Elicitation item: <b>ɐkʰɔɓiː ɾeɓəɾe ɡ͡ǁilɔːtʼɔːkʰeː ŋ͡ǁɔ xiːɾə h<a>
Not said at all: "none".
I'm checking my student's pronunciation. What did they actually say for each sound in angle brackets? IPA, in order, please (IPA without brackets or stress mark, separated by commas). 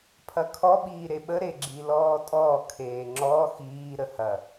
pʰ, ɐ